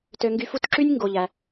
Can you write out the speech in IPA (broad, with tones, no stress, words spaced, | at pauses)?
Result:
tø˦ŋɡy˦fu˥t ǁy˦nʲŋɡo˨ʎæ˨